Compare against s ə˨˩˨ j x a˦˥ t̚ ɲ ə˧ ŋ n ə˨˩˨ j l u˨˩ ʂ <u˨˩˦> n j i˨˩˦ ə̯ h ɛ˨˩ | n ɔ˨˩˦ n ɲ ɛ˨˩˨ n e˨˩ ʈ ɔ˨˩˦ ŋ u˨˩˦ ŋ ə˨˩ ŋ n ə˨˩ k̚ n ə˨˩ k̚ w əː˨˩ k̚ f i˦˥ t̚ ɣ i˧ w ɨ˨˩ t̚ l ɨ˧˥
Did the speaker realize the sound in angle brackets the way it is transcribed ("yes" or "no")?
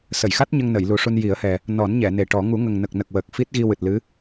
no